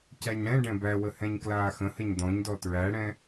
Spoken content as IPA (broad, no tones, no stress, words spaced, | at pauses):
cæɲɽɛ̃ɖɛ̃ bæwəhɛ̃ɲ klaːxə̃həɲ d̪ɔ̃ɲdɔ tɹæɽɛ̃